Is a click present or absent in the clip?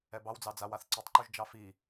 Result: present